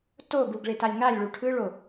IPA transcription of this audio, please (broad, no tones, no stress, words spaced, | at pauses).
to ɡuɡɭetalʲ ŋalʲɭu ʈʰɯɭo